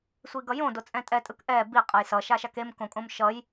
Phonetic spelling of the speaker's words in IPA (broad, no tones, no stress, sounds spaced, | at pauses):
sʷ i ɡ ʌ j õ d o t͡sʼ ɛ̃ tʼ ɛ tʼ ɯ k ʔ ɛ b i qʼ ʌ j s ʌ ʃ a ʃ a k e m k õ kʼ õ m ʃ ʌ j